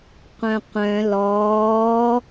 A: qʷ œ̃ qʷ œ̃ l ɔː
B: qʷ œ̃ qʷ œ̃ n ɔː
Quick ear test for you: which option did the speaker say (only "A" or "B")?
A